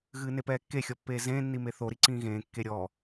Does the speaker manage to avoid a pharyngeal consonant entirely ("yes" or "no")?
yes